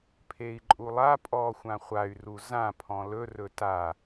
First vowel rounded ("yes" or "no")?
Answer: no